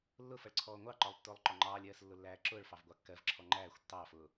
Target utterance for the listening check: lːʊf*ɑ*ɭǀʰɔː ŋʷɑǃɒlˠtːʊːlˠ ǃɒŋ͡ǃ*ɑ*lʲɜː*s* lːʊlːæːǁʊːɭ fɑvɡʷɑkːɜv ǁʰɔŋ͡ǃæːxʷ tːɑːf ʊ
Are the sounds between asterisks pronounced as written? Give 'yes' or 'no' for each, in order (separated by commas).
no, no, yes